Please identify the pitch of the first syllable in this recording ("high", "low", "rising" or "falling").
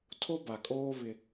high